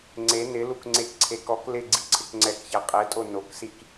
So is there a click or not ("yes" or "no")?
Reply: yes